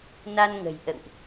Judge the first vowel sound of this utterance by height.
low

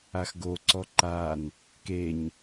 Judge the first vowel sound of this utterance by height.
low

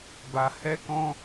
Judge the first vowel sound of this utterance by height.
low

